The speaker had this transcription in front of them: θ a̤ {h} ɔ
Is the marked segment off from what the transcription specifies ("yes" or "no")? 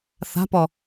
yes